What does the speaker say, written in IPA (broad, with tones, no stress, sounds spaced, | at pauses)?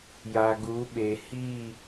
j a˨ ɡ u˨˦ ɓ e˨ h i˦˨